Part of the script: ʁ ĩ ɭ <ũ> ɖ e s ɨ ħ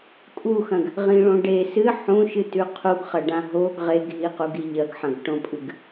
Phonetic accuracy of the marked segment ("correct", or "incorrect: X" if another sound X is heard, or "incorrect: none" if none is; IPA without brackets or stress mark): incorrect: õ